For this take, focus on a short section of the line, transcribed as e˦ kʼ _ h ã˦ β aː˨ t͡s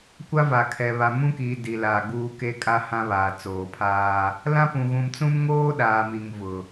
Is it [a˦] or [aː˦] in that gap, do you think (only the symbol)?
a˦